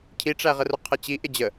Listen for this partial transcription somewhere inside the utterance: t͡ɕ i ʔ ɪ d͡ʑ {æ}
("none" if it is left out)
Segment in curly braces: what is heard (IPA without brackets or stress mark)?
ə